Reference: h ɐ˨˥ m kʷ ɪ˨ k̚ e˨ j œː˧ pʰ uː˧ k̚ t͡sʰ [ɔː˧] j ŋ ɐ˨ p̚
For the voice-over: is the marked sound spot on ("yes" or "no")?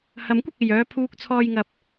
yes